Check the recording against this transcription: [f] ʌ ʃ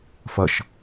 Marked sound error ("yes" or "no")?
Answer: no